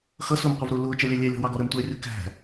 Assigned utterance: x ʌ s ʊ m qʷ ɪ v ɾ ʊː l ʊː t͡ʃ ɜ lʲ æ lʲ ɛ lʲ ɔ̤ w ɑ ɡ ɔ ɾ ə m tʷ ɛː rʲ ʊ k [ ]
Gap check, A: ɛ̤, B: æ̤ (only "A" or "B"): B